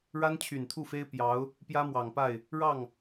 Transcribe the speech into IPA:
ɻ a˥ n t͡ɕʰ y˨˩ n t̪ʰ u˥˩ f e˥ ɪ̯ p j ɑ˧˥ ʊ̯ | p j ä˥ m w ɑ˨˩ ŋ p a˥˩ ɪ̯ | ɻ ɑ˥˩ ŋ

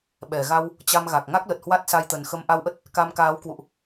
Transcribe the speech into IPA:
ɓ ɛ˧˩ ɣ a˧ w | t͡ɕ a˧ m ɣ a˨˩ k̚ ŋ a˦˥ k̚ l ə˨˩ t̚ h w a˦˥ t̚ s a˧ j t̪ ə˨˩ n x ə˧ m ʔ a˧ w ʔ ə˦˥ t̚ | k a˧ m k aː˨˦ w k w ṵ˧˨ ʔ

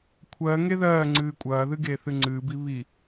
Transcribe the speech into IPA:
kʷʰ ɜ ŋ e ð ɜː ŋ͡ǀ ɨː kʷʼ ɐː ð ɨ ɡ eː θ ɨ ŋ͡ǀ ɨː b i β i

